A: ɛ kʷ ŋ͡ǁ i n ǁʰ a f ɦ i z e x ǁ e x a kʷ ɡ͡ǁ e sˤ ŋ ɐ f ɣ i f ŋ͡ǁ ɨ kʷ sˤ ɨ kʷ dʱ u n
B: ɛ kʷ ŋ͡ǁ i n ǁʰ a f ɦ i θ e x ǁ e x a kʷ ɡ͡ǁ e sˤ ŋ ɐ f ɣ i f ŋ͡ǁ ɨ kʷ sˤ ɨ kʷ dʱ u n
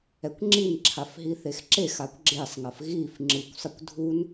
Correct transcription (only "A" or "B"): B